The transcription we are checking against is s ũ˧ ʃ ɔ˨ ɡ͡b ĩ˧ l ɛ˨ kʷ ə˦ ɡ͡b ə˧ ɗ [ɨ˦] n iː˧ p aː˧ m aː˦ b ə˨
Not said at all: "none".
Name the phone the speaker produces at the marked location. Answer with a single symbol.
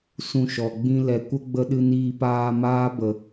ɨ˧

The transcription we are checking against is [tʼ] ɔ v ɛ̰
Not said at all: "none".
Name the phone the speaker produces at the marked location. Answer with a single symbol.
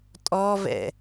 tʼ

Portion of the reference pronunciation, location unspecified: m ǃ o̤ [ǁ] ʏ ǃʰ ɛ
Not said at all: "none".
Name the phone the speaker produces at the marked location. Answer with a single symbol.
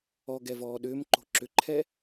ǁ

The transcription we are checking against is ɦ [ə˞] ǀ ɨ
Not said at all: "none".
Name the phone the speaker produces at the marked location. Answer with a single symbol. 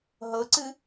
ɤ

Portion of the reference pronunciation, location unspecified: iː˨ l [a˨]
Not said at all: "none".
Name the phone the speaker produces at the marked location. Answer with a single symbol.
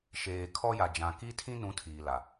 a˨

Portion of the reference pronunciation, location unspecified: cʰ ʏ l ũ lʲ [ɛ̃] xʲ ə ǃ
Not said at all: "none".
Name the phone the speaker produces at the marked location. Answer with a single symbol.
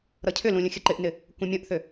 ə̃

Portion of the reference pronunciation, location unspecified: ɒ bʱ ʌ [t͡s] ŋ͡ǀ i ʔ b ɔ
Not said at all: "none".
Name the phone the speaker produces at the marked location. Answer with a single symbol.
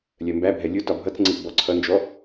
t͡s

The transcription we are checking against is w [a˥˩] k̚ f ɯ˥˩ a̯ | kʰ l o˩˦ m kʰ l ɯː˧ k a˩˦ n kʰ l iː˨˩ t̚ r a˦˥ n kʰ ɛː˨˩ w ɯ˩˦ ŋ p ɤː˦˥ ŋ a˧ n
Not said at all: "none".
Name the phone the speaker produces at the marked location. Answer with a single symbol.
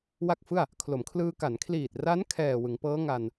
a˥˩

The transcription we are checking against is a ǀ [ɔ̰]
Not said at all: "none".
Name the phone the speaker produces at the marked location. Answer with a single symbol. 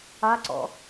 ɔ̰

